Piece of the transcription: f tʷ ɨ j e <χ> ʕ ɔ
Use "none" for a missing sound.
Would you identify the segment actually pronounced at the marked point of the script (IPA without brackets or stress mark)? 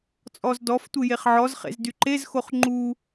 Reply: χ